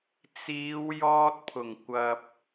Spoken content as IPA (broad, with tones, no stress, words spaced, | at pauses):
t͡siː˨˧w jɔː˥t̚pʰʊ˨˩ŋ kʷɐ˨p̚